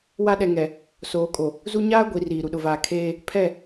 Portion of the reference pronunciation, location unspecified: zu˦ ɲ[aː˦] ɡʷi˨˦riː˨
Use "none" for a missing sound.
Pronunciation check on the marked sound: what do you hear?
aː˦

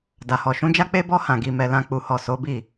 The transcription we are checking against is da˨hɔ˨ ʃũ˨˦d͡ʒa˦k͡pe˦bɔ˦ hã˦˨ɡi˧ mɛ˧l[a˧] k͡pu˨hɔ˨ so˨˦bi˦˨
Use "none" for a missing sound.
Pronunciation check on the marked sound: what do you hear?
ã˧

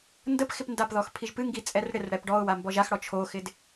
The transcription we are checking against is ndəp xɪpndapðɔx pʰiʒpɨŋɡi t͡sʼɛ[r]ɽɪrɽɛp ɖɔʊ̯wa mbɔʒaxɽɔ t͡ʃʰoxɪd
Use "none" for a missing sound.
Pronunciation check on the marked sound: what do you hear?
r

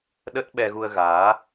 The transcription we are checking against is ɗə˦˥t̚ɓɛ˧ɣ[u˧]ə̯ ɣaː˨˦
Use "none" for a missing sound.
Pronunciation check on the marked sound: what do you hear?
u˧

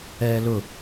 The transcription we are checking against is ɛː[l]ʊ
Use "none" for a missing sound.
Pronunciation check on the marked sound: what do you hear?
l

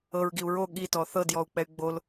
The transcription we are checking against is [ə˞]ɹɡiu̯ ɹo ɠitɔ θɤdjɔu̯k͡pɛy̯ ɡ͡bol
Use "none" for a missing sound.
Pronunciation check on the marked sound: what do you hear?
ɤ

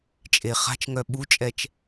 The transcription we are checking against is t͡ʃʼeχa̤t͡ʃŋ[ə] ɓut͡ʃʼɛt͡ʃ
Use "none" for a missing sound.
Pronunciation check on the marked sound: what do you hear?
œ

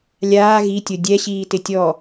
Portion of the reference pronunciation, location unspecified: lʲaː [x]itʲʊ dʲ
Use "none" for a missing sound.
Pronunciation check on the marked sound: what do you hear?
ɣ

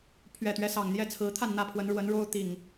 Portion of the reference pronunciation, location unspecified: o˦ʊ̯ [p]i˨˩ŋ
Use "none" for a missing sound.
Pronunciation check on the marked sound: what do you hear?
t̪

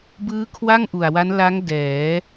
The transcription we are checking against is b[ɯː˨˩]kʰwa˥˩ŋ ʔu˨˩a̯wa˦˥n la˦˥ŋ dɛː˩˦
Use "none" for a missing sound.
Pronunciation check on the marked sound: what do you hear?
ɯː˦˥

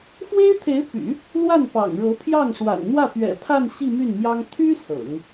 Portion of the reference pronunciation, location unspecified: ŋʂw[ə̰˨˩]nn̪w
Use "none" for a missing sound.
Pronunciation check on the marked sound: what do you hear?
a̰˨˩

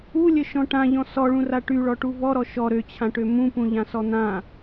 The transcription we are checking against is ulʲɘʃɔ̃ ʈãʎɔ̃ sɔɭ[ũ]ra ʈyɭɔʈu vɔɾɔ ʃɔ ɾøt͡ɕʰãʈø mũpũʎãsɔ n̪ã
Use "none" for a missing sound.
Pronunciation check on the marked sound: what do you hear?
ũ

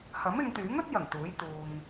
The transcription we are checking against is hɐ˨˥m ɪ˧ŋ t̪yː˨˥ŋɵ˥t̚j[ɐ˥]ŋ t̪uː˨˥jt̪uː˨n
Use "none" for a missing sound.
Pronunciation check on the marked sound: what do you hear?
ɐ˨˩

